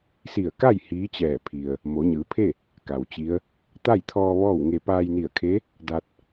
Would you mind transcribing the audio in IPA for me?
si˧˩ə̯ka˥˨j hiː˧˥t͡ɕɛː˧˩pʰi˩ə̯ | mo˩˧ɲɯː˩˧pʰe˥˨ | ka˩wt͡ɕi˧˥ə̯ | t̪a˥˨jt̪ʰɔː˧ ʋɔː˥˨wŋe˧ paː˧jni˧˩ə̯kʰe˧˥ | da˧t̚

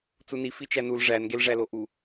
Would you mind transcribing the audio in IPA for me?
t͡suni fit͡ʃænul ʐæn ɡelʐæloʔu

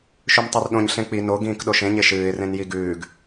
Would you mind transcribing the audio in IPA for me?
ʃʉmtˤorɗõɲ ɬẽk͡pi no ɡĩːkɗoʃẽ ɲeʃɨːɪ̯ rẽnjiɡʉːɡ

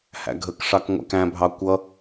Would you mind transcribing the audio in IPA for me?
hæ̰ɡʱəkʂɑk ŋʷæ̰kæ̃bʱɑ kʷʌ

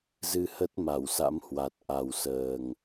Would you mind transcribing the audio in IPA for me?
zɨ˧hə˦˥t̚ ma˧˩wsa̰˧˥mhwa˨˩t̚ ʔa˨˩wsəː˨˩ŋ

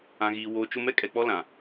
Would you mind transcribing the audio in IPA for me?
ã˨ɣiː˨ woː˨ t͡ʃʊ˦ mɛ˦kʼɛ˨k͡pɔ˦lã˨

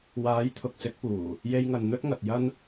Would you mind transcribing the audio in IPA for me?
waː˨˥jt̪ʰʊ˨k̚sɪ˨˥k̚puː˨˩ | je˧jŋɐ˨nn̪ɵ˥t̚ŋɐ˨t̚ jɐ˥n

